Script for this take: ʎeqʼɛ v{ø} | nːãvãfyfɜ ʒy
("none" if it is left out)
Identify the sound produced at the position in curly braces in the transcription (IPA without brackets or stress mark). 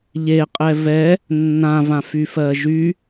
ɛ